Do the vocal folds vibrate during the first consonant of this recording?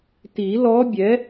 no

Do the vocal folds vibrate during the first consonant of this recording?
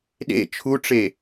yes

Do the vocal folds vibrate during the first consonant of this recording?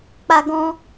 no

